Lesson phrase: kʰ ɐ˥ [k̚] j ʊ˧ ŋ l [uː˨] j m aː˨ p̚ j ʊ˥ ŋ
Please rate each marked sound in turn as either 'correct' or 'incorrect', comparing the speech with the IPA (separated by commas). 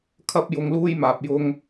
incorrect, incorrect